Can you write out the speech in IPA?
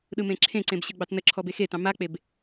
ɗ ɯ m ẽ ǁʰ ẽ ǀ ẽ b ɕ ɯ ɡ͡b ɑ t n ə ǁʰ ɔ b e x e t ɑ̃ m a k͡p e b

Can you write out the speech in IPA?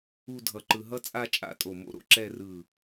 u˥˧ dʱ ʌ˧ ǃ ɯ˧ ɦ ʌ˥ t͡sʼ a˥˧ t͡ʃʼ a̰˥˧ tʼ o˧˩ m o̰˥˧ ɾ o̰˥ ǁ ɛ˥˧ r ɯ˧˩

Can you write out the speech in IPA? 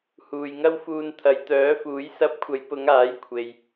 h uː˨ j ŋ ɐ˥ w f uː˧ n t̪ʰ ɐ˨ j t̪ œː˨˥ f uː˨˥ j s ɐ˧ p̚ kʷʰ ɐ˨˧ j p ʊ˨˧ ŋ aː˨˥ j kʷʰ e˨ j

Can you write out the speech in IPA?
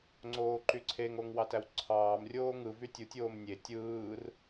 ŋ͡ǀ oː ǃ y ǀʰ e ŋ o ŋ w ɑ t æ w ǀʰ ɑː m rʲ oː ŋ ɯ v y tʲ u tʲ oː m nʲ e tʲ ɯː r

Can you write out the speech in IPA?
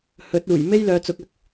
h ɵ˨˥ t̚ uː˨˩ j m e˥ j l œː˨˧ t͡s ʊ˨˥ k̚ ɐ˨˥ k̚

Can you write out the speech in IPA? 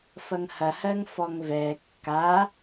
f ɐ ŋ h ɐ h ɜ ŋ f ɔ ŋ v ɛ kː a

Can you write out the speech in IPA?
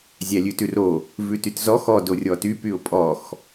zʲ æ lʲ ʉ t ʉ r o | v ʉ t y t z ɔ x ɔ d o rʲ ɔ t y p y ʊ̯ pʼ ɔ x

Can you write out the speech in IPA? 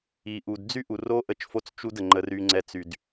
i˨ ʔ u˨ d d͡z y˦ ʔ u˨ r o˦ ʔ ə˦˨ t͡ʃ f o˦ t͡s t͡ʃ u˦ d ə˨ ŋ͡ǃ ə˦ r y˦ ŋ͡ǀ ɛ˦ t͡s y˦ d

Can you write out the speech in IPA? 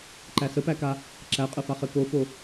ǃ æ s ə p æ k a | ǁ æ qʼ ə f a χ ɘ k o f o

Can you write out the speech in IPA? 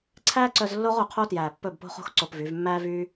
ǀʰ æː˦ ǀ œ˧ z lː o˦ ʁ o˨ qʰ o˦ t j æː˨ pː ɵ˦˨ b p o̤˦ χ o̤˦ x ǀ o˧ p v y˨˦ v mː æː˦ v yː˦

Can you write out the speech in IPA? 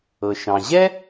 ɤ˩ ʃ ɑ̃˩ ʑ ɛ˥

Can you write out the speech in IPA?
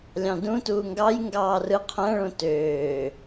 lʲ ɑ̃ d ũ t uː ŋ ɡ ɑ j ŋ ɡ ɑː r ɯ qʰ æ̃ ɭ õ t øː

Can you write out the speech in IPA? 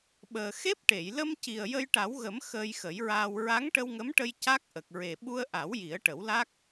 ɓ əː˨˩ x e˦˥ p̚ ʈ e˨˩˨ j l ə˧ m c i˨˩ ə̯ j ə˧ j ʈ a˨˩˦ w ɣ ə˨˩˦ m x əː˧ j x ə˨˩˦ j ɹ aː˧ w ɹ a˧˥ ŋ ʈ ə˧ w ŋ ə˧˥ m ʈ ə˧ j c a˦˥ k̚ ʔ ə˨˩ k̚ ɹ e˨˩ ɓ u˧ ə̯ ʔ a˨˩˦ w j i˨˩˦ ə̯ ʈ ə˨˩˦ w l a˦˥ k̚

